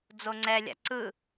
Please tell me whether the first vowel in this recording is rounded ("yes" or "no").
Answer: yes